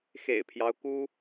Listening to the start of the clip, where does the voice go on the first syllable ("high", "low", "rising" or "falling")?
low